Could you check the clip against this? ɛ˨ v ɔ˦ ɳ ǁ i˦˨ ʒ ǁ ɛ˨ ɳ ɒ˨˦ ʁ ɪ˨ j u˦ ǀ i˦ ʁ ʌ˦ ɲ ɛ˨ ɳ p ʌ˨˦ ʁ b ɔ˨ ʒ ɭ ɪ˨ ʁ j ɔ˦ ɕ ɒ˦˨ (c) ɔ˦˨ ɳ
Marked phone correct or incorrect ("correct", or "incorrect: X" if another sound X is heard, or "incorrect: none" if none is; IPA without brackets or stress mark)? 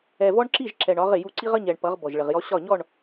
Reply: incorrect: ɲ